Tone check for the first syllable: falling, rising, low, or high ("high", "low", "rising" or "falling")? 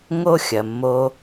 high